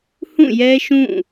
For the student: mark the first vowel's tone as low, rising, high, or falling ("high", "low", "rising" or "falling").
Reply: falling